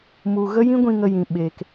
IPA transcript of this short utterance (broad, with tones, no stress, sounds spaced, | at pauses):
m u˧ ɣ ə˦ j ĩ˦ ɡʷ ĩ˧ ŋ ə˧ j ĩ˨ ɓ eː˧ k